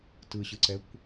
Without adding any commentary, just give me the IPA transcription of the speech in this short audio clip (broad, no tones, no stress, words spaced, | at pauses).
tɯɕɯǀɛkʷ